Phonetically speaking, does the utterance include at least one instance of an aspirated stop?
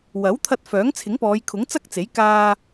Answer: yes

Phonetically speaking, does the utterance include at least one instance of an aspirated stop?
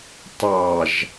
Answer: no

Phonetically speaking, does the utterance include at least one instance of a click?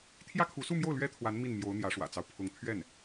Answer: no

